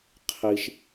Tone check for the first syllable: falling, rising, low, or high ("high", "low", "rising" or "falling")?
low